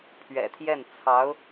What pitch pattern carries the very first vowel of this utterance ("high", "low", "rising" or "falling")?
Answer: low